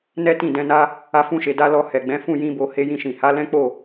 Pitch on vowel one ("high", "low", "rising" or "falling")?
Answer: high